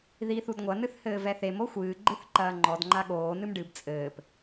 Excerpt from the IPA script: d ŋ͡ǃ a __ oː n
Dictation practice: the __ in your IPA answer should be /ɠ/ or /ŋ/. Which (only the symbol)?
ɠ